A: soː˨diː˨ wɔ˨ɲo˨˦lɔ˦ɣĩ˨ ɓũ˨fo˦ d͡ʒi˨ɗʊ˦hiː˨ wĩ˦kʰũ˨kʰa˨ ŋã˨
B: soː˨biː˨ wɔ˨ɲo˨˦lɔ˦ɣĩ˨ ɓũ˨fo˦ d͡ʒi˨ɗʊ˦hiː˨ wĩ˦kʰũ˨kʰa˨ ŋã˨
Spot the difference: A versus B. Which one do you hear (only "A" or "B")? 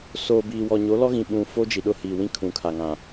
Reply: B